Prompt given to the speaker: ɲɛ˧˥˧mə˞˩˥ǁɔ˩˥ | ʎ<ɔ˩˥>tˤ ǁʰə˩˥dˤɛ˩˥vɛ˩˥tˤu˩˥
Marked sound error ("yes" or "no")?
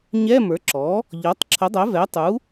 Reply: no